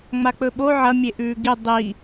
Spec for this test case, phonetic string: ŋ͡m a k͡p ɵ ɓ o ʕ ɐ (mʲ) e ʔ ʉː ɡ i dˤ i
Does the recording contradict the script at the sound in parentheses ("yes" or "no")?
no